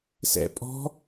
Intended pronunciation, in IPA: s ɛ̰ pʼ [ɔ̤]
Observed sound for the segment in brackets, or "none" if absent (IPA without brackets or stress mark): ɔ̤